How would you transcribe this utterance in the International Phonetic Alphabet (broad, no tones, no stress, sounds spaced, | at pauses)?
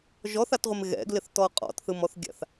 ʒ ɔ θ a t ʁʷ ɪ m ɣ ɛ̰ ɡ l ɪ θ t ɔ qʼ ɔ̰ t θ ɯ m ɔ θ ɡʲ a̰ θ